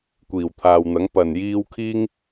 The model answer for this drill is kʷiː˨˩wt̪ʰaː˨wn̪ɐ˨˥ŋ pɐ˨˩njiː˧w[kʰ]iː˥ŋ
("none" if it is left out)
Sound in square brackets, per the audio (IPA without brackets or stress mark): kʰ